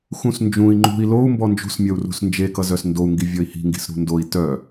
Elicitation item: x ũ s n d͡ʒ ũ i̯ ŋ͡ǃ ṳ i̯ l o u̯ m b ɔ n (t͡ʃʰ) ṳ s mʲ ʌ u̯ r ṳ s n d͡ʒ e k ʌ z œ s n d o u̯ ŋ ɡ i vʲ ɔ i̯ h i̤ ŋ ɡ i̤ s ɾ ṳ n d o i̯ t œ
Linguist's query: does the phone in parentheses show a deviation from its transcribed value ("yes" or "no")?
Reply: yes